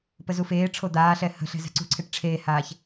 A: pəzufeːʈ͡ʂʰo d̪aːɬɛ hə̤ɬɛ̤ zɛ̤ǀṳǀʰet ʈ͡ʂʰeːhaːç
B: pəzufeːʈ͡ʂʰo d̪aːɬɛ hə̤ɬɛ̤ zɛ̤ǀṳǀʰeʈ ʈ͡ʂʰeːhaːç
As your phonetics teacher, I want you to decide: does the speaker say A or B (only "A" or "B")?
B